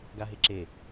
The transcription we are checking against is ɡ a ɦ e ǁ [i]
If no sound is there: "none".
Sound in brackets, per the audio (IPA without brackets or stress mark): e